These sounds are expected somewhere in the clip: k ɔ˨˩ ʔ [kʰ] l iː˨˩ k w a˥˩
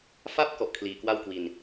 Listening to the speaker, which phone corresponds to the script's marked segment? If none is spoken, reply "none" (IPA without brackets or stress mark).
kʰ